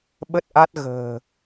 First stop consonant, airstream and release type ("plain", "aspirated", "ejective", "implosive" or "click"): implosive